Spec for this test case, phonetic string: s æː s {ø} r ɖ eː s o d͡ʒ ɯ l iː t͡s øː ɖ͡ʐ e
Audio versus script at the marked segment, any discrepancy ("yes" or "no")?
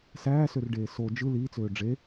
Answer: no